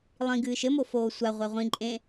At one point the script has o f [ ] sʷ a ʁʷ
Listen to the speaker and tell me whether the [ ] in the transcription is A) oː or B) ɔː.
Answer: A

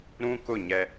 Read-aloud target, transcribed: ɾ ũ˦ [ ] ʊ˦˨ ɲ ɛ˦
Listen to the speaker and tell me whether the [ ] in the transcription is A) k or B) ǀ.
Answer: A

